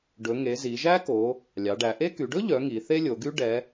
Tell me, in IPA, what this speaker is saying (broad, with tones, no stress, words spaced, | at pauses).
ɖɵ˩˧ŋe˩˧ zi˩˧ʒæ˥ko˩˧ | lʲɑ˩˧ɖæ˩˧ʔe˥ ky˩˧ɖɵ˥ʎœ˩˧ ŋi˩˧θe˥lʲo˩˧ɡy˥ ɖɛ˩˧